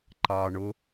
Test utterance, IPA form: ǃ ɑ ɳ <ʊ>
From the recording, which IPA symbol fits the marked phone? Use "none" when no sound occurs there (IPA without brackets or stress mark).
ʊ